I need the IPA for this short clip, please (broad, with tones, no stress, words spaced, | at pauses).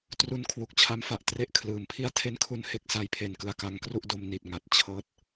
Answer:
tru˧n kʰwu˨˩k̚t͡ɕʰa˦˥mfa˨˩ʔ tre˦˥ʔ kʰlɯː˩˦mpʰi˥˩a̯ tʰe˥˩nkʰu˥˩n he˦˥k̚sa˧jpʰe˨˩nkɯ˨˩a̯ ka˦˥ŋkru˥˩ʔdo˦˥mni˨˩t̚ ŋa˨˩t̚ t͡ɕʰɤː˥˩t̚